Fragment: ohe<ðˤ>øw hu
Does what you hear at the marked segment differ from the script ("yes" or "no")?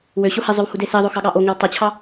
yes